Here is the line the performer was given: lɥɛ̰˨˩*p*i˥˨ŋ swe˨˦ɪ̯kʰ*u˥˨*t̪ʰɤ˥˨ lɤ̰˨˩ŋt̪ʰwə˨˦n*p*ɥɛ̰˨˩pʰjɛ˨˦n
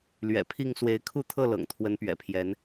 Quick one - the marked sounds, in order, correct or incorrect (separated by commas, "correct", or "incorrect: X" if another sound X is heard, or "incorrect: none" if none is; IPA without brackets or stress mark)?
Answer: incorrect: pʰ, correct, correct